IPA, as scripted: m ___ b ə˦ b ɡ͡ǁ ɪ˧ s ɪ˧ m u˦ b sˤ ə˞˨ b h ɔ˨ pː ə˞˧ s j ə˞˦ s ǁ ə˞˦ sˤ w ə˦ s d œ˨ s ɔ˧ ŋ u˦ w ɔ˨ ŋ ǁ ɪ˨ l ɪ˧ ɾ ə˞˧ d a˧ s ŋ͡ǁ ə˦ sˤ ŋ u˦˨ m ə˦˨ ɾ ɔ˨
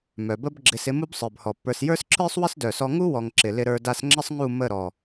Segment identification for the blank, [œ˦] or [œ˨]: œ˨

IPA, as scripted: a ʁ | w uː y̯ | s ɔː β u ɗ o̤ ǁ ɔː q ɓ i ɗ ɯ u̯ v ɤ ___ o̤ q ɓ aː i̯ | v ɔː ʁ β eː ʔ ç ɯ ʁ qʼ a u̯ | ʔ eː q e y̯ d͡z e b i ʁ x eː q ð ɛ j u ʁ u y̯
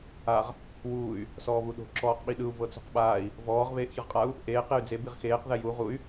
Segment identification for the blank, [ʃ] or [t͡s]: t͡s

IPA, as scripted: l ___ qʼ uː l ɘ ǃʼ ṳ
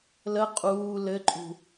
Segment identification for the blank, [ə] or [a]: ə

